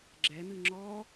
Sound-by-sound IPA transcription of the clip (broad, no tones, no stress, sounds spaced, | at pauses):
ɡ͡ǁ ɛ n̪ ɨ ŋ͡ǁ ɔ